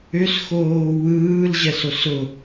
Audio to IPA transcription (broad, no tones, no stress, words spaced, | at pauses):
ʏsxoː wɯːlʑɛsos ʊ